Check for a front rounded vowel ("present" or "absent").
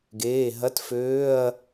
present